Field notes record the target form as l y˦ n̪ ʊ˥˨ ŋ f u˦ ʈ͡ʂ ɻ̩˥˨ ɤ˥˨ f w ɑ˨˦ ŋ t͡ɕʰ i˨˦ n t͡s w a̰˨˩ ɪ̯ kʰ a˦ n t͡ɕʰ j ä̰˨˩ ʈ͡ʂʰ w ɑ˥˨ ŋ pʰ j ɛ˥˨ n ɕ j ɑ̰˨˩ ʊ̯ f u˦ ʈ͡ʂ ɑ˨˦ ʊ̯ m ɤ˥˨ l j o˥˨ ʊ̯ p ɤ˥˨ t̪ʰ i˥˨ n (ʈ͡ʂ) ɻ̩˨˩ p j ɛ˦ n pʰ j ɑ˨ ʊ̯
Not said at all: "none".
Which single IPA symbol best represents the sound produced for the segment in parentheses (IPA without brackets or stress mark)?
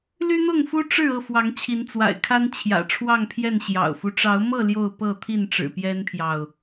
ʈ͡ʂ